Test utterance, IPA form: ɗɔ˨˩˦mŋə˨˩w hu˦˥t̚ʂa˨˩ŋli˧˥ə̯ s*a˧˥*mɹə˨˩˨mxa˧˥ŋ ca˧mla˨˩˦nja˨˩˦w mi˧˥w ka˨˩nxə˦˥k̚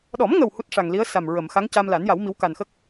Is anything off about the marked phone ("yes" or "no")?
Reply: yes